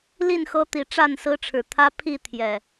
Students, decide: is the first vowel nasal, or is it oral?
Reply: oral